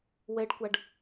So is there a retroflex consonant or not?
yes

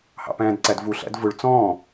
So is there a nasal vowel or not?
yes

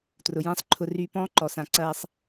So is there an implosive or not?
no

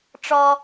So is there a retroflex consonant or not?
yes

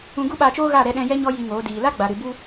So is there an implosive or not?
yes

